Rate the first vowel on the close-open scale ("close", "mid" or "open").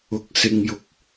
close